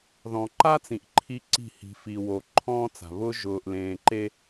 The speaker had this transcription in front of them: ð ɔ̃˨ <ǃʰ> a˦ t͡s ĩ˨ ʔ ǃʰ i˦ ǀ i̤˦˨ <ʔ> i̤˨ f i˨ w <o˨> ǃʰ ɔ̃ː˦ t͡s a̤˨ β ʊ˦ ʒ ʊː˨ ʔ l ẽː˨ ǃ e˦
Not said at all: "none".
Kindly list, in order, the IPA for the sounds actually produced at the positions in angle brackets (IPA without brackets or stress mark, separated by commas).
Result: ǃ, h, o˨